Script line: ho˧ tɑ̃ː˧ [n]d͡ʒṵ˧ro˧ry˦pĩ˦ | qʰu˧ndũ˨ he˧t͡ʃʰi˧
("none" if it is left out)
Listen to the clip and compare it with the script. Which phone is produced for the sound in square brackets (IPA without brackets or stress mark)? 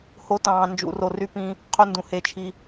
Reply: n